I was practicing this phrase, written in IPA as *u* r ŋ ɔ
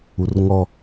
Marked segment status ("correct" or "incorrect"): correct